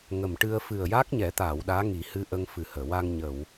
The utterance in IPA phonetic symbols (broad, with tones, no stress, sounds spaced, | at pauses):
ŋ ə˨˩ m ʈ ɨ˧ ə̯ f ɨ˨˩ ə̯ j a˦˥ k̚ ɲ ɛ˨˩˦ t̪ aː˨˩˨ w ɗ aː˧˥ ŋ i˨˩˦ h ɨ˧ ʔ ə˧ ŋ f ɨ˨˩ h əː˨˩˨ w a˧ ŋ ɲ ə˨˩˨ w